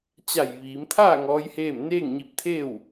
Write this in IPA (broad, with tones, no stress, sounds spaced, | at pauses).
t͡ɕ a˧˩ j ʋ iː˩˧ m t̪ʰ aː˥˨ ŋ ɔː˧˥ j h eː˥˨ m n eː˥˨ ŋ ɲ i˧ p̚ t̪ʰ eː˥˨ w